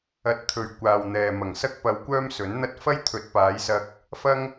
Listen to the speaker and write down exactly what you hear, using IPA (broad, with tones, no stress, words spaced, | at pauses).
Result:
ɐ˧t̚t̪ʰɵ˨ɥ kʷaː˨wn̪ɛː˨ mɐ˨˩ŋsɐ˥k̚pɐ˧wkʷœː˥m sɵ˨˥nn̪ɐ˥t̚ fɐ˥jt̪ʰɵ˨˥t̚paː˨˧j sɐ˥k̚ | fɐ˥ŋ